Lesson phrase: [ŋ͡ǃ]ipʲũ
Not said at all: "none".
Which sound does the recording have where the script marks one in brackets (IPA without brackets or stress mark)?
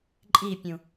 ǃʼ